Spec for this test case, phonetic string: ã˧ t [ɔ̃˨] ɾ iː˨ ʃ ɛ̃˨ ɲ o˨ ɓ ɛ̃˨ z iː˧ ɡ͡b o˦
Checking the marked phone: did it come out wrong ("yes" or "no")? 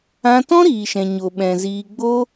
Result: yes